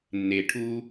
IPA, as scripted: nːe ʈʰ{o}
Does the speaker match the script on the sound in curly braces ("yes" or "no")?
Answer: no